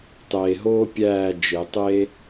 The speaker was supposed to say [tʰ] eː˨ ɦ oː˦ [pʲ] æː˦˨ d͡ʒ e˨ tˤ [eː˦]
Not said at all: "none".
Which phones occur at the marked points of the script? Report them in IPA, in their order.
tˤ, pʲ, eː˦

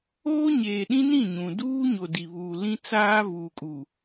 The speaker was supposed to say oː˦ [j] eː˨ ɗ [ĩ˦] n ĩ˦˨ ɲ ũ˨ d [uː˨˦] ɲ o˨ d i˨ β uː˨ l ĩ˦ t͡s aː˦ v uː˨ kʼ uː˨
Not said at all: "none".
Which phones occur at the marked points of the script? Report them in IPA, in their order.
ɲ, ĩ˦, uː˦

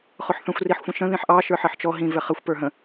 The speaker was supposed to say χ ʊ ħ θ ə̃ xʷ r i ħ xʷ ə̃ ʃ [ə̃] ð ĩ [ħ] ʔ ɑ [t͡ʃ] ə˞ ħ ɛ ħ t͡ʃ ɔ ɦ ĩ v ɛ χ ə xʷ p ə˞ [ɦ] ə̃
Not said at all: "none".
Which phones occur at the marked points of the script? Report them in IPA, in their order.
ə̃, ħ, ʃ, ɦ

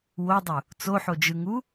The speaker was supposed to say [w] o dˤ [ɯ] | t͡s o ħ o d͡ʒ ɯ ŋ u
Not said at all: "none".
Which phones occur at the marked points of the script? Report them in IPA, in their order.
w, u

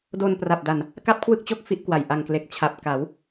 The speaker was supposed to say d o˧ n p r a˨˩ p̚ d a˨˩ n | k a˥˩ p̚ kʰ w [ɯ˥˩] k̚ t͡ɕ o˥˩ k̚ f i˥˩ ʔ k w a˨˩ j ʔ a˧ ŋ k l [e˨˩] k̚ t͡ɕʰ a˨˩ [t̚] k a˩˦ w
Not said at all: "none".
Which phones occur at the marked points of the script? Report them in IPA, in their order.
ɯ˥˩, e˨˩, p̚

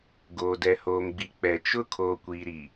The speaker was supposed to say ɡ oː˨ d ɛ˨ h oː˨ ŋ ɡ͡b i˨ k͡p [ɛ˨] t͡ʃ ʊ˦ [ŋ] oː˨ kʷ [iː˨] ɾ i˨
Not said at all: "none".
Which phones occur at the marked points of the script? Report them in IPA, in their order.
ɛ˨, kʰ, iː˨

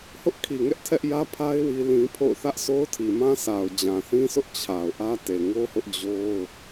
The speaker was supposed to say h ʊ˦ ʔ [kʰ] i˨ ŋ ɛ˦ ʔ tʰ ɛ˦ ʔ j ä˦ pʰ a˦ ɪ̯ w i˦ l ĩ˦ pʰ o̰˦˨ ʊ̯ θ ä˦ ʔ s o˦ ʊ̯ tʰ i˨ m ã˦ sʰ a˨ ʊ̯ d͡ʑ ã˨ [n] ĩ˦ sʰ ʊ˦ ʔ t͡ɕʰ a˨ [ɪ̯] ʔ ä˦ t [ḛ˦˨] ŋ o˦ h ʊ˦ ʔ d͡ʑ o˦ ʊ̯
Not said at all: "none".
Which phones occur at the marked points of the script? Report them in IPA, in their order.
kʰ, θ, ʊ̯, e˨

